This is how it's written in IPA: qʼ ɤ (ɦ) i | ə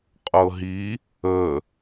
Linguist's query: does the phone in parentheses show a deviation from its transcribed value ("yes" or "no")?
no